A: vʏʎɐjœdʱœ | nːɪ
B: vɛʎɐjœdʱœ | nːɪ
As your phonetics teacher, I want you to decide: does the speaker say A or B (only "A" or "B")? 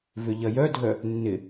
A